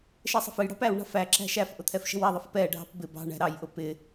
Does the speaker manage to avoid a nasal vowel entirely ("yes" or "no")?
yes